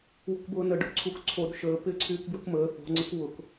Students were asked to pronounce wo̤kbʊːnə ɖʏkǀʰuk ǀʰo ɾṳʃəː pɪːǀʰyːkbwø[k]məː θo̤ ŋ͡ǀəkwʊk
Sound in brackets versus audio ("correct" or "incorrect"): correct